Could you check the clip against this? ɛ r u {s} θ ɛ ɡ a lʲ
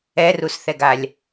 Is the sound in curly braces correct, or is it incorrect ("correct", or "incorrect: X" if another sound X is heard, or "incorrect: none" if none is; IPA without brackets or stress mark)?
correct